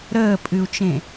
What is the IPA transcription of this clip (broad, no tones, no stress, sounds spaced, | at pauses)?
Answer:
ɾ əː pʼ ɨ u̯ t͡ʃ ẽ